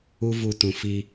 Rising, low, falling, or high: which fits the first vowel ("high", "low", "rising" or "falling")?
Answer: high